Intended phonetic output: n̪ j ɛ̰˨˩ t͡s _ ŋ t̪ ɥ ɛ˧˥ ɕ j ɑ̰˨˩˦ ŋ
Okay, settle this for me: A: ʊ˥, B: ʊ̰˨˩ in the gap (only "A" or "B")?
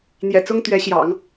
A